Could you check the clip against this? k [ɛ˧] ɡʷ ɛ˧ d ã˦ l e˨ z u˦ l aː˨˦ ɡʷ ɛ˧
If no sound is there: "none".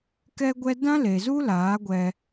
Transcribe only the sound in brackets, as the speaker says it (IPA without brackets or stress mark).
ɛ˧